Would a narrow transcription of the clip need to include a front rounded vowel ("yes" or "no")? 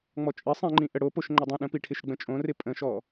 no